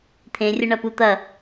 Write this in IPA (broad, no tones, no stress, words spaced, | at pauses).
t̪ʰẽrʲə ɳɐput̪ɐ